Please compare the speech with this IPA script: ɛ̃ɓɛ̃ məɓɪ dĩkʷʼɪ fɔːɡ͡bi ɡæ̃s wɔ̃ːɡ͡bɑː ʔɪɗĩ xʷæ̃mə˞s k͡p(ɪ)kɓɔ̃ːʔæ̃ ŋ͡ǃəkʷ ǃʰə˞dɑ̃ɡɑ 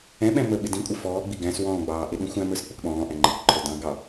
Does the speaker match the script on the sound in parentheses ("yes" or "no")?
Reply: yes